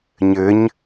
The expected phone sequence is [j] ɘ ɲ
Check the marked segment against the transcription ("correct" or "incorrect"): incorrect